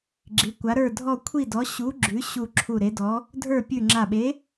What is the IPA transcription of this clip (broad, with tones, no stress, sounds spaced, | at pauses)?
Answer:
ɡ͡ǁ i˧˥ kʷ a˧˥ ɾ ə˞˥˧ dʱ ɔ˥˧ kʷʰ i˥˧ d ɔ˧˥ ɕ u˧˥ ɡ͡ǁ ʉ˧˥ ɕ u˥˧ ǁʰ u˥˧ ɾ e˧˥ d ɔ˧˥ | dʱ ə˞˥˧ pʲ ʉ˥˧ ŋ͡ǁ a˥˧ ɓ e˧˥